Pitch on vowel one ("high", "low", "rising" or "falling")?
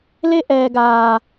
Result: high